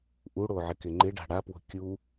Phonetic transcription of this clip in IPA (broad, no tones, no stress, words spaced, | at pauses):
ʔuɽo ʕɪkɪŋ͡ǃɪɖa̤ ɽapwo̤ kʲu